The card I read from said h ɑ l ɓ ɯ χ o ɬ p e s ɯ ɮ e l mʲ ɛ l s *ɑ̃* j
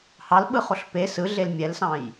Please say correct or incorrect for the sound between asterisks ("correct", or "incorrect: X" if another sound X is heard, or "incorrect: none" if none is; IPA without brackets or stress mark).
correct